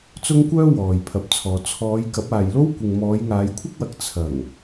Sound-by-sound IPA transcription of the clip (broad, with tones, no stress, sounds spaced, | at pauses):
t͡s ʊ˥ ŋ kʷ œː˥ w ɔː˨ j pʰ ɐ˨˥ p̚ t͡sʰ ɔː˨ t͡sʰ ɔː˨˧ j k ɐ˨˥ p̚ aː˨ j l o˥ w kʷ ɪ˨ ŋ m ɔː˨˧ j ŋ aː˨˧ j kʷʰ ɐ˥ k̚ w ɐ˨˥ k̚ t͡sʰ ɐ˨˩ ŋ